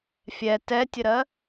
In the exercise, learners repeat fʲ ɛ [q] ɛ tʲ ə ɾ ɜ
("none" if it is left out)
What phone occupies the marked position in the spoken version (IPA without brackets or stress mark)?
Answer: t